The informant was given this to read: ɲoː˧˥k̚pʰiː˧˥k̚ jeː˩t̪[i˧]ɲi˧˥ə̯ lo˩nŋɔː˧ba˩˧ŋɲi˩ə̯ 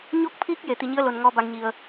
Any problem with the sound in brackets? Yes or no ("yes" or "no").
no